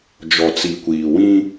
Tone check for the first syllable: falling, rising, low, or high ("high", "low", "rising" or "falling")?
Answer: low